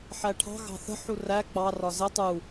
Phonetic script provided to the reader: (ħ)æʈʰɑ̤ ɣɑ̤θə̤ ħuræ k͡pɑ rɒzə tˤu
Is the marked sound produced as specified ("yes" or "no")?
yes